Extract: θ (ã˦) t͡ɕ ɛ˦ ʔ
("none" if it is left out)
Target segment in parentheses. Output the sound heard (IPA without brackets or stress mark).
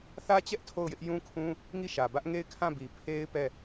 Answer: ä˦